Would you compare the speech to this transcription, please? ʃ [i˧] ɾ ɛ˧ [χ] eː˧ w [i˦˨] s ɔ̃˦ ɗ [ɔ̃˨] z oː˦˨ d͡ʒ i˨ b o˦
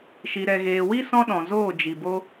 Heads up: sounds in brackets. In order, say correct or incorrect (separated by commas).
correct, incorrect, incorrect, correct